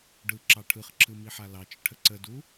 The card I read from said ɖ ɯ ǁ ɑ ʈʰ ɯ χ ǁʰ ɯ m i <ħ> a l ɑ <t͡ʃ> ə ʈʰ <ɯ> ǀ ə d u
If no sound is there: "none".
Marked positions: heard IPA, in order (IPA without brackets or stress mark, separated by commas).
ħ, t͡ʃ, ə